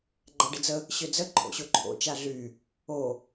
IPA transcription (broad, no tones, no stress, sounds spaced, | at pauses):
ɡ͡ǃ a ɖ ɪ d͡z ə | ɕ ø d͡z ə ǃʰ o̰ ɕ o ǃʰ o̰ t͡ʃ a ɮ y | o